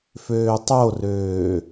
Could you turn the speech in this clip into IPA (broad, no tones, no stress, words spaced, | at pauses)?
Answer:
føːtˤorøː